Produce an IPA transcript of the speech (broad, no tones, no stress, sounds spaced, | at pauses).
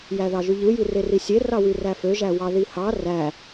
j æ ð ɑ ʒ y ʎ ɯ j i r e r i sʲ e r ɑ w y r æ f ø ʒ æ w ɑ ð i h ɑ r æ